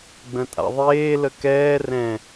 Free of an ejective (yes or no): no